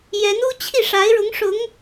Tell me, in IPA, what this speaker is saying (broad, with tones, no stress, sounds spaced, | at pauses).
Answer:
j ɛ˧˥ n u˥ t͡ɕʰ i˥˩ ʂ a˧˥ ɪ̯ ɻ ʊ˧˥ ŋ ʂ ʊ˧˥ ŋ